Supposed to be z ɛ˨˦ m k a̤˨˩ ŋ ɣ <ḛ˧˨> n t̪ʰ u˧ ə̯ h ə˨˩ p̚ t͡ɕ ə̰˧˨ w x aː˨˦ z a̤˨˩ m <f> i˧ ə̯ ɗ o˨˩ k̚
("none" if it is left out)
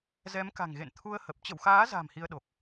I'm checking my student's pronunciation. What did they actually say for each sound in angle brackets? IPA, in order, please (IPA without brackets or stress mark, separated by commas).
ḛ˧˨, h